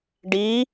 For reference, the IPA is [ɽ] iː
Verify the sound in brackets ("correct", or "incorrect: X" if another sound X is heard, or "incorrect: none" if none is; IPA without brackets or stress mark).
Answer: incorrect: ɖ